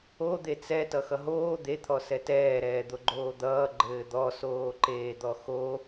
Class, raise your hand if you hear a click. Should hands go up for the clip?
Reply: yes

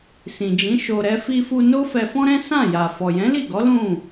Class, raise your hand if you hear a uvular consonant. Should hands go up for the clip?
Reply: no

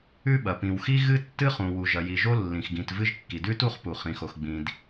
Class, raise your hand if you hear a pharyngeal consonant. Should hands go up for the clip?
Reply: no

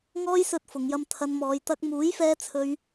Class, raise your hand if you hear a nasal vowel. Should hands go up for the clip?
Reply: no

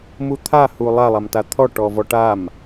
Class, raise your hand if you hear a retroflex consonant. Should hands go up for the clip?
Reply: yes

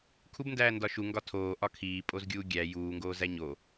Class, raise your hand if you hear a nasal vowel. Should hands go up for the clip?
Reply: no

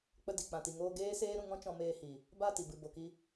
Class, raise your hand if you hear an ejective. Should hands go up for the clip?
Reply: no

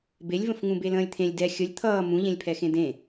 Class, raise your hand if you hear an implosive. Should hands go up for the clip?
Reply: no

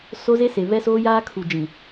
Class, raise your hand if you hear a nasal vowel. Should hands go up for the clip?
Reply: yes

